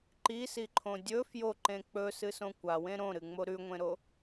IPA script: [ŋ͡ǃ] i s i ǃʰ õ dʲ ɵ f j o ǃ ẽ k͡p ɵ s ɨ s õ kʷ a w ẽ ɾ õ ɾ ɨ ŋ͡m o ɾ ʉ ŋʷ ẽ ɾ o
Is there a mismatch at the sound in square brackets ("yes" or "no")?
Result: yes